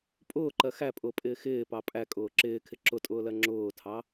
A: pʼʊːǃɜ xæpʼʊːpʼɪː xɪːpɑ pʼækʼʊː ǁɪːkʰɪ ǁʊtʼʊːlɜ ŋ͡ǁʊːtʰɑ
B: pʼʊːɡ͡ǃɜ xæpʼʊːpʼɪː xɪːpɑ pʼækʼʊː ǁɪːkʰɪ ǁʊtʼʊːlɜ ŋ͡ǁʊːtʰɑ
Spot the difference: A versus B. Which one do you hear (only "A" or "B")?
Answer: A